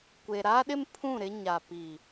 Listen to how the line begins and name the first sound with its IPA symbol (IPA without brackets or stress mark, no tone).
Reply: kʷ